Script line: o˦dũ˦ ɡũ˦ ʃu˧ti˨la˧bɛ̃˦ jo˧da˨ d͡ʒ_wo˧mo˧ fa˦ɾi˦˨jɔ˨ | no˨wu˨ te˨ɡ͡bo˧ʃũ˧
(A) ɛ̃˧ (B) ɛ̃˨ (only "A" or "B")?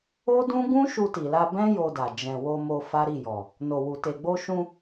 B